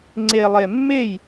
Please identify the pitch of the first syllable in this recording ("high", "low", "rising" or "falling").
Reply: low